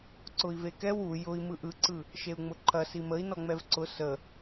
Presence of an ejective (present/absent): absent